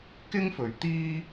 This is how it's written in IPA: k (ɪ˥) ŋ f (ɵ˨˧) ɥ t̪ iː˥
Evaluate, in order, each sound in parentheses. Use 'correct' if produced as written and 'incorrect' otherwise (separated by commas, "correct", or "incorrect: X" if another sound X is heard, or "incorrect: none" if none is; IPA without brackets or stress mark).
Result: correct, correct